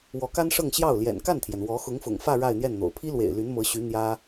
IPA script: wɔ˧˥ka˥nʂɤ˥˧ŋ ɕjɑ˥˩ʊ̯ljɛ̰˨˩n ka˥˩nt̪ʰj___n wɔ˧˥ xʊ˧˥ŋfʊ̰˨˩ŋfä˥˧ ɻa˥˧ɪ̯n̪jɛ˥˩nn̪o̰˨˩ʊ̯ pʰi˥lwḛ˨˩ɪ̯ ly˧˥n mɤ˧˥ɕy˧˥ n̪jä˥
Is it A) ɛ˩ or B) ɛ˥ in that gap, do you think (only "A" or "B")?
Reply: A